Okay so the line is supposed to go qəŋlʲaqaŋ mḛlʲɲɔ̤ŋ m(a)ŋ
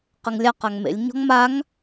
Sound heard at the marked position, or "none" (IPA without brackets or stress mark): a